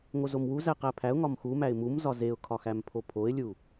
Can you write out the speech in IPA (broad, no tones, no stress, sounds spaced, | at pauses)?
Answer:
ŋ o z o m w u z æ q æ pʰ æ ʊ̯ ŋ ɒ m x u m æ ɪ̯ m u m z ɒ z e ʊ̯ kʰ ɒ x æ m pʰ o pʰ o ɪ̯ lʲ u